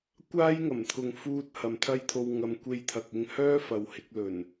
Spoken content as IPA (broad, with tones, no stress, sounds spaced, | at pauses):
kʷ aː˥ j ŋ ɐ˨˩ m t̪ʰ ʊ˨ ŋ f uː˧ t̚ h ɐ˨ m t̪ʰ ɐ˥ j t̪ʰ o˧ w ŋ ɐ˧ m kʷ e˧ j t̪ʰ ɐ˨ k̚ ɪ˧ ŋ h œː˥ f ɐ˧ w h ɪ˨˥ k̚ l ɵ˨˩ n